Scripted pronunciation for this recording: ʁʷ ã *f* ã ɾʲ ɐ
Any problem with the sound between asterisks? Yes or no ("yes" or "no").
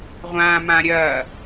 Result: yes